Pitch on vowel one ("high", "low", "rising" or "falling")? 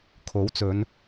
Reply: rising